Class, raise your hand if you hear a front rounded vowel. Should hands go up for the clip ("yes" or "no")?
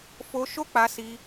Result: no